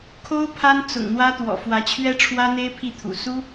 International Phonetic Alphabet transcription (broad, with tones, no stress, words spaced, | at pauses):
kʰo˥ʊ̯ pʰa˥nt͡sʊ̰˨˩ŋn̪wä˥t̪wɔ̰˨˩ fwä˧˥t͡ɕʰɥɛ˥ʈ͡ʂʰwä˥n̪e˥ɪ̯ pʰi˥˩t̪ʰṵ˨˩ su˥